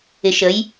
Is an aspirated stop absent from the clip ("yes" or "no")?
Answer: yes